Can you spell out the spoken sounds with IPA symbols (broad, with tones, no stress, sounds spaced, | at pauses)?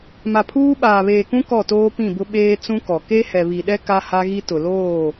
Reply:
m a˨ pʰ uː˦ ɓ aː˨ β eː˨ k ũ˦ k ɔ˦˨ t oː˦ p ĩ˦˨ b ʊ˦ ɓ eː˦ t͡s ũ˦ k ɔ˨ k e˦ h ɛ˨ β i˨ ɗ ɛ˦ k a˦ h a˦ ɣ i˦ t ʊ˨ l oː˦˨